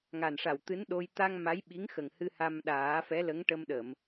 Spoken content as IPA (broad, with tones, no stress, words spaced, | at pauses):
ŋa˨˩nʂa˨˩wt̪ɨ˧˥n ɗo˧j t̪a˧ŋ ma˧˥jɓi˧˥ŋxə˨˩ŋhɨ˧ ha˧mɗaː˨˩˦ fɛ˧˥lə˧˥ŋʈə˧mɗə˨˩˨m